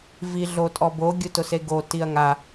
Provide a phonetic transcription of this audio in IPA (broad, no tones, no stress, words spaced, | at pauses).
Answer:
vi ɮotʼɔbo ɡʲutʊseɡo tiɐ̯ŋa